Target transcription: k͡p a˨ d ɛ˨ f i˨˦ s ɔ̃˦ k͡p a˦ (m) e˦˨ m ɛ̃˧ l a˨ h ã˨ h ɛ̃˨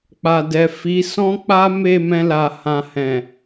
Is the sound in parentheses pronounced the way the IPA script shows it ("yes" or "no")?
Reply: yes